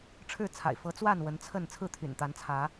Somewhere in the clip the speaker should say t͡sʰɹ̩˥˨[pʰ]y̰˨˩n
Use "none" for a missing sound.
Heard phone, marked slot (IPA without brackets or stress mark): t̪ʰ